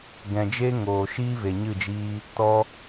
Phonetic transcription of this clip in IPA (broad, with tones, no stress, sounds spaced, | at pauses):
ɡ ɛ̃˨ d͡ʒ e˦ ŋ oː˨ ʃ iː˦ v e˨ ɲ ɨ˦˨ d͡ʒ iː˦ | t ɔ˦